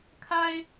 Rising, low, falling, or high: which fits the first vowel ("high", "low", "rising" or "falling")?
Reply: high